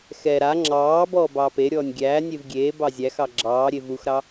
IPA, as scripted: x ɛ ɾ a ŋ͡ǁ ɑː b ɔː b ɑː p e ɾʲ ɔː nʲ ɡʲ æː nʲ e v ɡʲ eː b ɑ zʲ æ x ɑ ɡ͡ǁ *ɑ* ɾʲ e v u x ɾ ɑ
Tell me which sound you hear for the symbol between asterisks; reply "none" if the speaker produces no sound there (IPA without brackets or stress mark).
ɑː